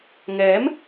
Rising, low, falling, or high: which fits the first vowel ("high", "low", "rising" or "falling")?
rising